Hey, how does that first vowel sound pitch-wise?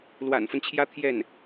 low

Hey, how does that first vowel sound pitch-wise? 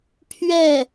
falling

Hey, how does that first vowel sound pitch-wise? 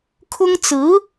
high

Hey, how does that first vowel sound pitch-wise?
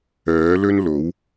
rising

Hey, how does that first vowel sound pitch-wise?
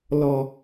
high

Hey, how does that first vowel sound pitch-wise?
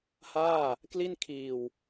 falling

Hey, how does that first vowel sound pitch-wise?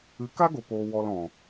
rising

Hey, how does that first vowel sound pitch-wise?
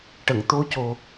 low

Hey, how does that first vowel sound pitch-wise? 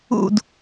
falling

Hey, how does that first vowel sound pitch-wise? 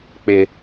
high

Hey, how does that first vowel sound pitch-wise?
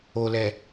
low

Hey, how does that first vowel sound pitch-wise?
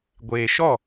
low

